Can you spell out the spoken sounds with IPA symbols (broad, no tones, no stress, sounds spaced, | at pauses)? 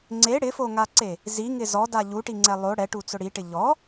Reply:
ŋ͡ǀ e ɽ ɪ f o ŋ a ǀ e | z i ŋ ɪ z ɔ d a ʎ u ʈ i ŋ͡ǀ ɛ lˠ o ɽ ɛ ʈ u t͡s ʊ ɽ i ʈ ɪ ʎ ɔ